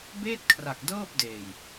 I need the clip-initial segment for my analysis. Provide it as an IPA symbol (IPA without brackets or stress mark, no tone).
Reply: b